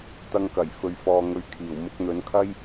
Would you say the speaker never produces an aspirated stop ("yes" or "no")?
no